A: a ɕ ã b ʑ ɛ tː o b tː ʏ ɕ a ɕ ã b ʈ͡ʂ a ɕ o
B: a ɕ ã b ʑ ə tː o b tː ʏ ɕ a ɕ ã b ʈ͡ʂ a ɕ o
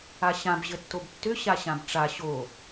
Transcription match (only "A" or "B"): B